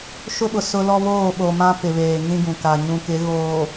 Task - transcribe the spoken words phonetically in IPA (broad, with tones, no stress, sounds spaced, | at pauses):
ʃ ʊ˦ ɓ ʊ˨ s ʊ˦ l ɔ˦ β oː˦˨ ɓ o˨ m ã˦ p ɪ˨ β eː˨ ŋ ĩ˦ ɡ ũ˨ k a˨ ɲ ũ˨ k ɪ˨˦ ɣ oː˨